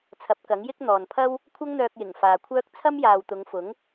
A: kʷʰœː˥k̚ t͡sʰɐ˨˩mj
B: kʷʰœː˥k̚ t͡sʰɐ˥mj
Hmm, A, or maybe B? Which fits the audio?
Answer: B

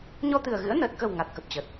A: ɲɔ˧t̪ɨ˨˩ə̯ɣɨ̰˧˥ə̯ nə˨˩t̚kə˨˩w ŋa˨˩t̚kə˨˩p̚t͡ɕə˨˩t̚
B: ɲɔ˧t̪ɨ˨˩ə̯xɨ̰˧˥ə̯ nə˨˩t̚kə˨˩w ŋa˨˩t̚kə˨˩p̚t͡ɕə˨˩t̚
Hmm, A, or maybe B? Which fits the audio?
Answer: A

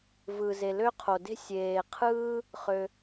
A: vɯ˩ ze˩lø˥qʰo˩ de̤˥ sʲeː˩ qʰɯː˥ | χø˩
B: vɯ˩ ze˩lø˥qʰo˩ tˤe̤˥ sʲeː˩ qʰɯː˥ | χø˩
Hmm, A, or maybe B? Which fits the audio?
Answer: A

